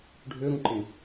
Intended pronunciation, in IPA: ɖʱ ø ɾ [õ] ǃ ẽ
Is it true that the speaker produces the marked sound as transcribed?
no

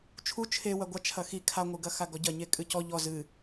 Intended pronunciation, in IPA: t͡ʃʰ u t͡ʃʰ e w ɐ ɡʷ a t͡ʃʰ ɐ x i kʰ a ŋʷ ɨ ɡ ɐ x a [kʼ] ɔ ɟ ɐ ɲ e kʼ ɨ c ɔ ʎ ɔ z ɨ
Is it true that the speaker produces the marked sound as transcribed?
no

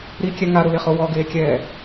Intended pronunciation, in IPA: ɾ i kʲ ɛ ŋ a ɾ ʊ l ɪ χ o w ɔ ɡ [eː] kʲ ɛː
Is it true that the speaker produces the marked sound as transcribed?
yes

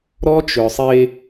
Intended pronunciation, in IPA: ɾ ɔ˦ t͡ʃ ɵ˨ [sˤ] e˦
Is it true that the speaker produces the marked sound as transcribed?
yes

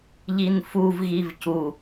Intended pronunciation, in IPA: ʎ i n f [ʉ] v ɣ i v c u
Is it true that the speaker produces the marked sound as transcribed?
no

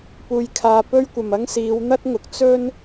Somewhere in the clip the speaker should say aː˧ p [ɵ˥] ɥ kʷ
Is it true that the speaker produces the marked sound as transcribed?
yes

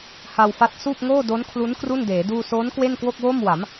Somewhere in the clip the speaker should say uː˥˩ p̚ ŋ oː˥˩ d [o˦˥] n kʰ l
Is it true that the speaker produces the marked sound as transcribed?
yes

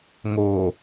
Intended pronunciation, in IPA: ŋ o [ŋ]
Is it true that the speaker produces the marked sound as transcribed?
no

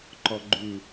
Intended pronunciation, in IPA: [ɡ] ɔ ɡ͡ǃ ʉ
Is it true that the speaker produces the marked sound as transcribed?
no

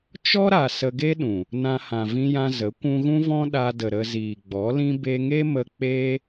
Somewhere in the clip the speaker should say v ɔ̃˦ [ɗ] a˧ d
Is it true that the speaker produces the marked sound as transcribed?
yes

